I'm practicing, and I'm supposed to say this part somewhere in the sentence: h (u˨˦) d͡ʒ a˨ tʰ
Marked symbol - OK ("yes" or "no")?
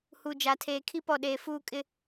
no